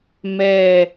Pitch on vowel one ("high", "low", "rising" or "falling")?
low